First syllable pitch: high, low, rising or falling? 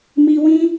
high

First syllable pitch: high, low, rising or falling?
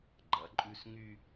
rising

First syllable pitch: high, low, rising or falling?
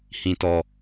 low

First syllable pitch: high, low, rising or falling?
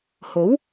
rising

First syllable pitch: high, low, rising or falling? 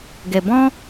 low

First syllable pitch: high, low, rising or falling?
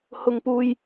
low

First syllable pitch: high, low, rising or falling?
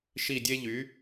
falling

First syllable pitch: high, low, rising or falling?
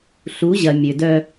rising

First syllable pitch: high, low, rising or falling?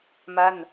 falling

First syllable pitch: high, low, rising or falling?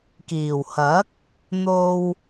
low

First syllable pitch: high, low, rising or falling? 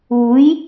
rising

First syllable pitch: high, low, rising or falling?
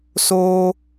high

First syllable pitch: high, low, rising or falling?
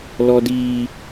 high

